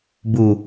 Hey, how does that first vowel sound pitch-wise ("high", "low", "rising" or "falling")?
low